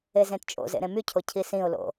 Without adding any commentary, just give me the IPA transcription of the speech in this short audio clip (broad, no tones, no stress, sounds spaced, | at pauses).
e z ẽ t t͡ʃʼ o̰ z ḛ ɾ ẽ m y cʰ o cʰ i s ĩ ʊ̯ l o̰